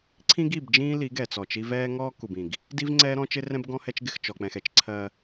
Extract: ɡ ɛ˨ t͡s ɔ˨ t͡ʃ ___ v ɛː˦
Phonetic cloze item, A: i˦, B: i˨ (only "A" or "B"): A